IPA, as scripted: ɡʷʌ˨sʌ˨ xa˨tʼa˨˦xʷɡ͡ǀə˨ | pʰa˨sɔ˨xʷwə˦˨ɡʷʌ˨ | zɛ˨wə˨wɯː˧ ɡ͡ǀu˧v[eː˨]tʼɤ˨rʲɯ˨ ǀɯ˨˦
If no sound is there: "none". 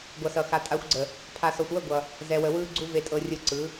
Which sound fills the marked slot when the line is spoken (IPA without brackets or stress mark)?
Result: e˨